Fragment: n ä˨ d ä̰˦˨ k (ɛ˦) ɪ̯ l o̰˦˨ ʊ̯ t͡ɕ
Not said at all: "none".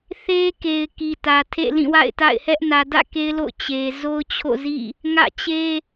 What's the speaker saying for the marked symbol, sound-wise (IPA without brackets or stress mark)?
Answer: e˦